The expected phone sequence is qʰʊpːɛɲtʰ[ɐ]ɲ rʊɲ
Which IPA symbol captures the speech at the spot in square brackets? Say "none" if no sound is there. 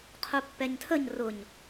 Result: ə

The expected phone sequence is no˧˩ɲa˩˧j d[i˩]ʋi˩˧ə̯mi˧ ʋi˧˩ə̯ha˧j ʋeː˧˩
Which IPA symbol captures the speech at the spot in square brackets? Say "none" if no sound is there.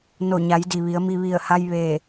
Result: i˩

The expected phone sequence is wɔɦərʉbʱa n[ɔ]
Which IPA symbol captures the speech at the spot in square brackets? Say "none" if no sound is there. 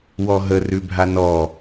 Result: ɔ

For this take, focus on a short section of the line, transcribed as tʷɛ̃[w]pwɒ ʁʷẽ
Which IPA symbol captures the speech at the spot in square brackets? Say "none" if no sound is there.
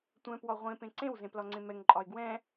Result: none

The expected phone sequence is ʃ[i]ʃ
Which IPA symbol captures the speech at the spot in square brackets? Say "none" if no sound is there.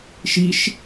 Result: i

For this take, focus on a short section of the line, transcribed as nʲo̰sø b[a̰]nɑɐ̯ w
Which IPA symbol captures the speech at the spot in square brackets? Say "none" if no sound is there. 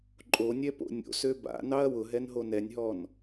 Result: a̰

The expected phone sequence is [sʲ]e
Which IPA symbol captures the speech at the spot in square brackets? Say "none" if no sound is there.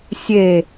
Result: sʲ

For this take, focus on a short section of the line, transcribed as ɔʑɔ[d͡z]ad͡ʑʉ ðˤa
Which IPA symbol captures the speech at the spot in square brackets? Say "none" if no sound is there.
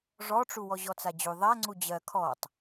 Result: t͡s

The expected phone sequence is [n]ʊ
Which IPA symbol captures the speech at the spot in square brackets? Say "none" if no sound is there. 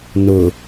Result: n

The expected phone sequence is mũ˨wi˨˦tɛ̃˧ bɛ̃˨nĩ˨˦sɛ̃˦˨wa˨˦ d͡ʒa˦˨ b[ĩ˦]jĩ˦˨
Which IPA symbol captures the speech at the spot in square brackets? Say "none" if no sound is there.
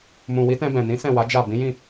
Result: ĩ˨˦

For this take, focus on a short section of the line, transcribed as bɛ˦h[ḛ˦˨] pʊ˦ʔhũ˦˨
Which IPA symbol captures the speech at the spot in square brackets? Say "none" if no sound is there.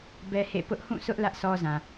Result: ḛ˦˨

